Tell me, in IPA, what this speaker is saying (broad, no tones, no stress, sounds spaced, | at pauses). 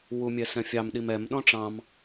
w u mʲ ɛ s ɛ̃ fʲ ɑ m ɗ i m ɛ m ɗ ɔ̃ ʈ͡ʂ ɑ̃ m